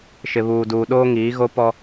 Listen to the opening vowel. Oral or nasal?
oral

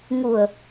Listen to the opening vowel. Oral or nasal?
oral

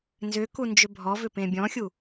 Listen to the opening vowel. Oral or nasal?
oral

